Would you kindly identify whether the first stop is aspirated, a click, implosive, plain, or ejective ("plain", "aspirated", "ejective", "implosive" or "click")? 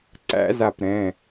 click